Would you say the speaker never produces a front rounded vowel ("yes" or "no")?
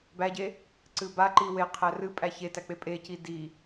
yes